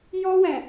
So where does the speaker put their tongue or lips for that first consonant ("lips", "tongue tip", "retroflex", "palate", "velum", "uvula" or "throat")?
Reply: palate